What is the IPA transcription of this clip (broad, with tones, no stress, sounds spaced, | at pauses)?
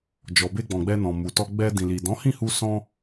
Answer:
d͡ʒ ɔ˨ b e˧ ɡ͡b ɔ̃˨ ɡ͡b ɛ˧ n ɔ̃˨ m u˨ t ɔ˧ ɡ͡b ɛ˧ d ĩ˨ l i˨ d ɔ̃˨˦ h ĩ˦˨ h u˧ s ɔ̃˧